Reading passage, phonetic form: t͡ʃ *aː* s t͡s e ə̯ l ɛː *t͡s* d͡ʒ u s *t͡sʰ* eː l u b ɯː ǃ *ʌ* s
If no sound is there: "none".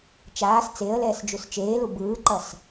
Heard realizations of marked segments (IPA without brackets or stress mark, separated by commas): aː, s, t͡ʃ, ʌ